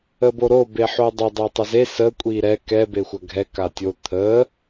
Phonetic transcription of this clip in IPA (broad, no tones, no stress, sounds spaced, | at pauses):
ə b o ɾ o b e ħ o dˤ ɐ dˤ ɛ tˤ ɐ z e s ə kʷʼ i ɾ ɛ k ɛ b e xʷ ɐ ɡʱ ɛ k a tʲ o t̪ʰ ə